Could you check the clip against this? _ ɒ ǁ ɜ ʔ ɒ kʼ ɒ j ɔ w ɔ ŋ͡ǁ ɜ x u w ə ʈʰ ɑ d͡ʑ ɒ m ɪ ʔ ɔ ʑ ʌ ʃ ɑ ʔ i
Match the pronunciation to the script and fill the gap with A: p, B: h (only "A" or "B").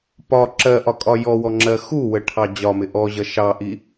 A